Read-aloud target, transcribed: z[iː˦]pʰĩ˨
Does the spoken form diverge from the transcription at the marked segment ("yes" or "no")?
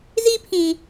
yes